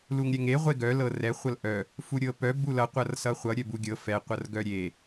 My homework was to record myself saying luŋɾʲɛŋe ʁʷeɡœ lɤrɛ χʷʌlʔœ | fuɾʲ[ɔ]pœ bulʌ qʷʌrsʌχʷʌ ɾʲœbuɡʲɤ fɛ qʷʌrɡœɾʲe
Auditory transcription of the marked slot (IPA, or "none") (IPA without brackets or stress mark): ɤ